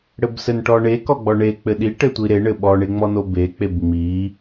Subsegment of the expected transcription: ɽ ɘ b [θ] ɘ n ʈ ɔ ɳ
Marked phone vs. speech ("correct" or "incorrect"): incorrect